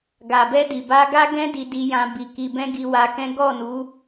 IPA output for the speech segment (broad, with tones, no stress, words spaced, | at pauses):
ɡa˨bɛ˧di˨ ba˧ɡa˦ɡɛ̃˦ di˧di˧jã˧ bi˨ ki˨bɛ̃˧ ɡi˧wa˧kɛ̃˦ ɡɔ˦˨nu˨˦